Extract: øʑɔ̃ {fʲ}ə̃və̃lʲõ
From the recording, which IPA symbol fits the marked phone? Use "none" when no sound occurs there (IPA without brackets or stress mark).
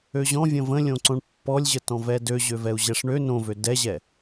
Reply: vʲ